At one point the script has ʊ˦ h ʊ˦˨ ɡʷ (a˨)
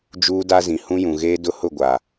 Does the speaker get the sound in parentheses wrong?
no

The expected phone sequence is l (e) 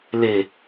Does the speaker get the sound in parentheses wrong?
no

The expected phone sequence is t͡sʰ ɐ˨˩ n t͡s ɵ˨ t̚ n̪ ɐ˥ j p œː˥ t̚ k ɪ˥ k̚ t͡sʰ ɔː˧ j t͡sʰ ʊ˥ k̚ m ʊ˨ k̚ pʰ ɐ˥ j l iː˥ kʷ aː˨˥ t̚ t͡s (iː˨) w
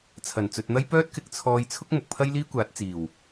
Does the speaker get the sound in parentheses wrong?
yes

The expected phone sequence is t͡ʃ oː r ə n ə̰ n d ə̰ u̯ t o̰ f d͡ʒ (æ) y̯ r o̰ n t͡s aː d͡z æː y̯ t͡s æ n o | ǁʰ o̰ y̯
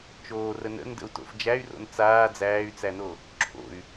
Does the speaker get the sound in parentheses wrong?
no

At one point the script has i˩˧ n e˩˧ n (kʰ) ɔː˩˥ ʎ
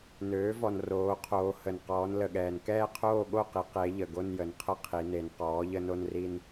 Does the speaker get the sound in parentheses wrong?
yes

